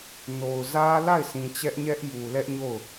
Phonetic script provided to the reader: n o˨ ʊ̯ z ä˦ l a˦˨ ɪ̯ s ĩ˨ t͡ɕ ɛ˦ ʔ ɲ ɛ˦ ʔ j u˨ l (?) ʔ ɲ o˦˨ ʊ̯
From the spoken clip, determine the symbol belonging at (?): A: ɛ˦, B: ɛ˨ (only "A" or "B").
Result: A